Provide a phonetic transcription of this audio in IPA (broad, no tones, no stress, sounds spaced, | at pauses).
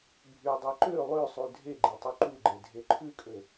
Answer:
bʱ y dˤ ɛ ǃ ø lˠ ø sˤ ʉ dʱ e ɡ͡ǃ e tˤ y ǃ u ɡ͡ǃ e dʱ e ǃʰ ʉ kʼ ø